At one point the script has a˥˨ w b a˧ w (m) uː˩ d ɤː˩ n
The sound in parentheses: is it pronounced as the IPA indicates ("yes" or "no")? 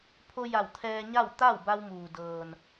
yes